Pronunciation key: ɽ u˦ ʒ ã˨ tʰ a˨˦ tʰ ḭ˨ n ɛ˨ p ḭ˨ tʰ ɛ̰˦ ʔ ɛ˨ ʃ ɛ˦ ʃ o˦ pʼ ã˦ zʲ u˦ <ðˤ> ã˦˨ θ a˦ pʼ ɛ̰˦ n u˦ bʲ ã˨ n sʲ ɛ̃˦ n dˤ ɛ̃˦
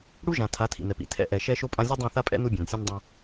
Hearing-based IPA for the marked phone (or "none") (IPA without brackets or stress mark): dˤ